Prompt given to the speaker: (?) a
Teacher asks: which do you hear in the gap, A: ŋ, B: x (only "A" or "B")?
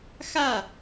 B